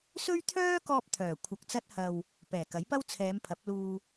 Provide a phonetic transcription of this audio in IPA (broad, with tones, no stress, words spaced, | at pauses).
sɵ˥ɥt̪ʰœː˥kɔː˧p̚ t̪ʰœː˨˩ kʷʰɐ˨k̚t͡sɐ˧t̚hɐ˨w | pɛː˨˩kɐ˨˥j pɐ˥wt͡sʰɛː˨˧m pʰɐ˨˥p̚luː˧